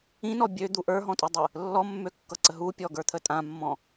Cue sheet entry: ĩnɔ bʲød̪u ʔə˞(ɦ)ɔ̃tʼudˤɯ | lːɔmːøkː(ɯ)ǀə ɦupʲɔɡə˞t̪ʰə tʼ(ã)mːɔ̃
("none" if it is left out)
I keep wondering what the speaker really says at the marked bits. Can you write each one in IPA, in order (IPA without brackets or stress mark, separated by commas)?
ɦ, ɤ, ã